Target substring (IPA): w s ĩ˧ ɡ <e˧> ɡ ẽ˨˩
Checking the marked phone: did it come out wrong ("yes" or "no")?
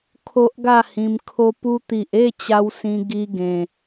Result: yes